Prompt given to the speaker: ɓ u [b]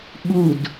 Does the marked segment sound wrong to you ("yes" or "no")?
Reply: yes